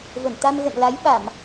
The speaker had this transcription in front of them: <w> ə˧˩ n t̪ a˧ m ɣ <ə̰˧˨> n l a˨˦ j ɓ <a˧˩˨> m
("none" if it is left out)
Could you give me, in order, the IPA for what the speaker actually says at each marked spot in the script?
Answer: v, ə̰˧˨, a˧˩˨

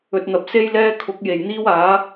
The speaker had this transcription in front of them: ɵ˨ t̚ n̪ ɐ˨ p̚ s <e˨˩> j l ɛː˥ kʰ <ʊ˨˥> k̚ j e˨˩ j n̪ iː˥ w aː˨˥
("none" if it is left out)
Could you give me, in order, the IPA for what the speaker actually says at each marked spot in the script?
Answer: e˥, ʊ˨˥

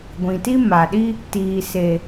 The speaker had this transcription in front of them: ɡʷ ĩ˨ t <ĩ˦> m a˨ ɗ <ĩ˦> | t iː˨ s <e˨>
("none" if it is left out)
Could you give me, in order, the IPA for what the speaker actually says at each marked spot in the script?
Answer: i˦, i˦, e˨

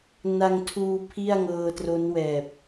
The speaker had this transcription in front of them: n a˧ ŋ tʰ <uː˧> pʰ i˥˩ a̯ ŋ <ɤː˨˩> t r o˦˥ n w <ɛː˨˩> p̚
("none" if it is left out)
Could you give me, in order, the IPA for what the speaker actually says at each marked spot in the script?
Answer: uː˧, ɤː˧, ɛː˨˩

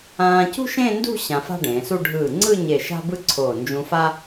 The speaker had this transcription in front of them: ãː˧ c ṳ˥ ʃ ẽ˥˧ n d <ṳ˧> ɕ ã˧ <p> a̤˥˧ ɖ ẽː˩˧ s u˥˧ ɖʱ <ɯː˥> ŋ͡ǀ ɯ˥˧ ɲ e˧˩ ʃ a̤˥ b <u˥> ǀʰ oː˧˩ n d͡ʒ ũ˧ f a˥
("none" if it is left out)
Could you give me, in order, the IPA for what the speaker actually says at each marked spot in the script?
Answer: ṳ˥˧, f, ɯː˧˩, ɯ˥

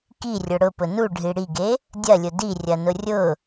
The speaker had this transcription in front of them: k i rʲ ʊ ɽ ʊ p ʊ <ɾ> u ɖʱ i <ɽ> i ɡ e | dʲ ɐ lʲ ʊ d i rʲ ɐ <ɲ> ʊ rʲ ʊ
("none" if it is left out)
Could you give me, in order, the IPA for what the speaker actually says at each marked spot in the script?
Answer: n, ɽ, n

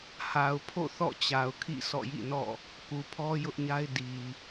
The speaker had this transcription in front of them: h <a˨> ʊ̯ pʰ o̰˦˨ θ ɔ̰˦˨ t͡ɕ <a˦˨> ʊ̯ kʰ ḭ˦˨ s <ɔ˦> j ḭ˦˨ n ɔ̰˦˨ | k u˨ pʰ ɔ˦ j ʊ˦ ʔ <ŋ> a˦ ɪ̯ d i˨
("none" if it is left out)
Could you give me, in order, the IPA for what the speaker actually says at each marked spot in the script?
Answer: a˨, a˨, ɔ̰˦˨, ɲ

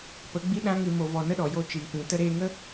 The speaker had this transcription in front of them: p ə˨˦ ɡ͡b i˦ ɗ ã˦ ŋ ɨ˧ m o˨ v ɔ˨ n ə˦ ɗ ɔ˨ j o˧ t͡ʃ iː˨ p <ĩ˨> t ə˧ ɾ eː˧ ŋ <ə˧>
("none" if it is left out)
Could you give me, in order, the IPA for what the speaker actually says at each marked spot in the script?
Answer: ĩ˨, ə˦

